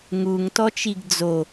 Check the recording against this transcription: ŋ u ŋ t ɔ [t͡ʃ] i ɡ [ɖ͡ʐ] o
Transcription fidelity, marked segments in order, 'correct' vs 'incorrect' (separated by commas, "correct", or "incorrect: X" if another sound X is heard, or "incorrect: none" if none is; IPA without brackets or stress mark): correct, incorrect: d͡z